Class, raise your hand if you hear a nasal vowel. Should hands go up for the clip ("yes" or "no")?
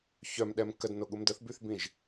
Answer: yes